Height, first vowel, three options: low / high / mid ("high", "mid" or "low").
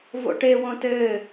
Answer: mid